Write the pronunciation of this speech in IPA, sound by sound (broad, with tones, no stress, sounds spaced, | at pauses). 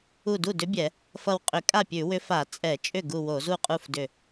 u˧˩ d u˥˩ d ʏ˧˥ bʲ ɛ˧˩˧ | f ʌ˧˩ w qʼ ʏ˧˩˧ kʼ a˥˩ pʲ ʉ˧˩˧ w ʏ˧˥ f a˧˩˧ t͡sʼ ɛ˧˩˧ t͡ʃʼ ʏ˥˩ ɡ u˧˩ w o˧˩˧ z u˥˩ qʼ u˥˩ f d ʏ˧˩